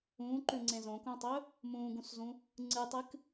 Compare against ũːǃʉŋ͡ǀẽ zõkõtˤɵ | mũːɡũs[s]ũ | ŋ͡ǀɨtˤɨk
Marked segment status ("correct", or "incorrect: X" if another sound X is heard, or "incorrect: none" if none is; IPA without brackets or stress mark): incorrect: z